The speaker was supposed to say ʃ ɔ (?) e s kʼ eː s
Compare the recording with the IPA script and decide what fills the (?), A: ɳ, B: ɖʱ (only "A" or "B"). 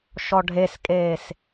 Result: B